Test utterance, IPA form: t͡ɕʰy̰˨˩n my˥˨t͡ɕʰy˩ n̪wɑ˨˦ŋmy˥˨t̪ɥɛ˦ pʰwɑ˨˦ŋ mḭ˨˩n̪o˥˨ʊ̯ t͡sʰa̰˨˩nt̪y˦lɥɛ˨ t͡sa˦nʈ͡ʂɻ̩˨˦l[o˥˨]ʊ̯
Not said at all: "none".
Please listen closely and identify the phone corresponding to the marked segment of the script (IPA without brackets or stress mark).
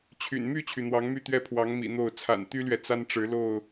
o˥˨